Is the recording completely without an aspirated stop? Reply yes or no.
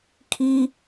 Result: no